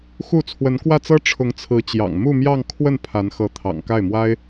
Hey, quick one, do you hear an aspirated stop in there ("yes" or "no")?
yes